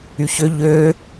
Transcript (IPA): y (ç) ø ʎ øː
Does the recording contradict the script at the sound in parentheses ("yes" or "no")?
no